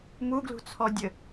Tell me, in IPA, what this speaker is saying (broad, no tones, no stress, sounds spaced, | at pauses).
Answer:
m u ɡ l ṳ t͡sʰ ɔ dʲ ɘ